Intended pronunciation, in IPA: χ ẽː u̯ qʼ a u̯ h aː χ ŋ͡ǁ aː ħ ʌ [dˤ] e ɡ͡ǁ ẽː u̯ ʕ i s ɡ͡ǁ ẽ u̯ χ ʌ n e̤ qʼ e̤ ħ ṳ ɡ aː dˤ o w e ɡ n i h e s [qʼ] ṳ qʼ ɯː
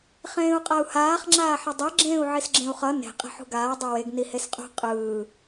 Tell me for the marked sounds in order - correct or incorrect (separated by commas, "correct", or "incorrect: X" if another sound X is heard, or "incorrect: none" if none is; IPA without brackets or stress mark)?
correct, correct